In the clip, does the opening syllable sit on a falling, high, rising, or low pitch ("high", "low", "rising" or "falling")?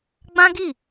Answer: high